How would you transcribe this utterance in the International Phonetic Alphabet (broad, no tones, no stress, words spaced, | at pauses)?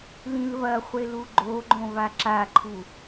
lĩlβɐχʷel uɡ͡ǃoɡ͡ǃõ βaǁaǃʰu